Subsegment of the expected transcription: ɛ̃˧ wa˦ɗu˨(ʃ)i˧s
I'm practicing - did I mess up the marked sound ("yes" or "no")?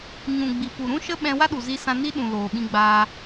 yes